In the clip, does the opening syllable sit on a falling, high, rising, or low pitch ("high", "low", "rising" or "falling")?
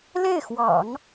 falling